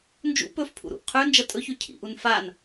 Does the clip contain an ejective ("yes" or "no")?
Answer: yes